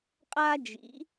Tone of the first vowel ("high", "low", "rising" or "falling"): high